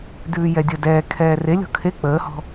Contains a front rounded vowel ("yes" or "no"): no